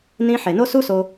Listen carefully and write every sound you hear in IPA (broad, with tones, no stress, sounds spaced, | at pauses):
n ĩ˧ ħ e˨ n o˦ s u˦ s o˧